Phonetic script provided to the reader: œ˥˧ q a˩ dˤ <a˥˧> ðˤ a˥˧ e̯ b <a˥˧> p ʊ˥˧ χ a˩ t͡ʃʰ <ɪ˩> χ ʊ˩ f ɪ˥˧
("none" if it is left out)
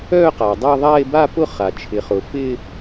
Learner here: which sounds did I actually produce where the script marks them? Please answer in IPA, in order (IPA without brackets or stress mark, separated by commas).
a˥˧, a˥˧, ɪ˩